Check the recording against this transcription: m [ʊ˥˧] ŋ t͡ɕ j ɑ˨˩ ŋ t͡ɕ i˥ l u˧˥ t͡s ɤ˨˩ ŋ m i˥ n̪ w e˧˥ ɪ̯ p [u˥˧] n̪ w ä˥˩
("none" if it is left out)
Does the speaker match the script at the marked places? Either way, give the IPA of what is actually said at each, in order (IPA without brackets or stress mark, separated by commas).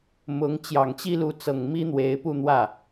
ʊ˧˥, u˥˧